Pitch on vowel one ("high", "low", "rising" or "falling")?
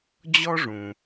high